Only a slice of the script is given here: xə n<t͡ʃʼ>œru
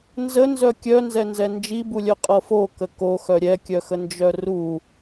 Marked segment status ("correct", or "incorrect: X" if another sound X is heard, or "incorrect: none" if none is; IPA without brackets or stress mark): incorrect: d͡ʒ